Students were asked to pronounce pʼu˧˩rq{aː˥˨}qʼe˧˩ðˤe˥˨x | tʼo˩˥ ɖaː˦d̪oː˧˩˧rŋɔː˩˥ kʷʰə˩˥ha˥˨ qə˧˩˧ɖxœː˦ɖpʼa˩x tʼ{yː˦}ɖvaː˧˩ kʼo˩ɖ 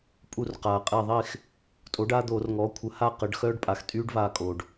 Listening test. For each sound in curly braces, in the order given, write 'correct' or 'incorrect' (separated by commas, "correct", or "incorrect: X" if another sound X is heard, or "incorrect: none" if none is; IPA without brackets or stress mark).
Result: incorrect: aː˩, correct